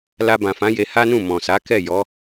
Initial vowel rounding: unrounded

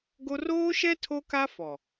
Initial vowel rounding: rounded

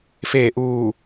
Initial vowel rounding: unrounded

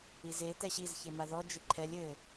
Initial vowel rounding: unrounded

